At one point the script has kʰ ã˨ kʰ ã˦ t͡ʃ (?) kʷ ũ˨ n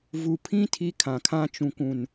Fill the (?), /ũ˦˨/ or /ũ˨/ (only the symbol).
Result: ũ˨